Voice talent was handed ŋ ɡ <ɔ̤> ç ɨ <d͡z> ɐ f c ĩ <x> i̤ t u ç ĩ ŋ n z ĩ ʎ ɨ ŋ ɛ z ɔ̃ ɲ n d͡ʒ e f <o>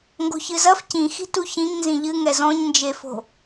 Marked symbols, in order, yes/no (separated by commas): no, no, yes, no